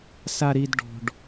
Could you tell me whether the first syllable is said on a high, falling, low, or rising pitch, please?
high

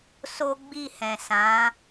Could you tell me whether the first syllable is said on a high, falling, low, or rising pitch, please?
high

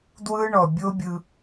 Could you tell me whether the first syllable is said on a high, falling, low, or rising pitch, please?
high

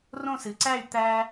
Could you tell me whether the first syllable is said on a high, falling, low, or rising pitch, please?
falling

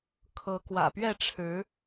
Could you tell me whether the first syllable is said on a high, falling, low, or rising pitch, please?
rising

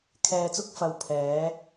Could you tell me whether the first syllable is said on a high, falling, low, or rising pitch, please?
low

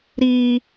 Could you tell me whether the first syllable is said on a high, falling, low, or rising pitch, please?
high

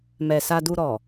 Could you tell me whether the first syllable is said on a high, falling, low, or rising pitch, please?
low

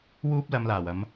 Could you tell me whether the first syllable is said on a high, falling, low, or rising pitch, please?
high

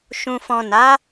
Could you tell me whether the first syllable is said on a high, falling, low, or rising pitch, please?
low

